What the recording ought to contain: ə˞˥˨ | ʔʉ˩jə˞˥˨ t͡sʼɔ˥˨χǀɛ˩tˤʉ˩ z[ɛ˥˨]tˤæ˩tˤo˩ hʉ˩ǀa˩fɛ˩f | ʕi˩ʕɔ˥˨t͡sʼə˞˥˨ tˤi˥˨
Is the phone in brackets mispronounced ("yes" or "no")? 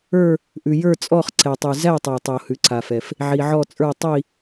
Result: yes